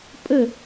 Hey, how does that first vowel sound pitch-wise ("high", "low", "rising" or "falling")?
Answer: falling